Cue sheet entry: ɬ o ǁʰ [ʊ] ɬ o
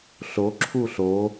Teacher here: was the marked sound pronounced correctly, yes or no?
no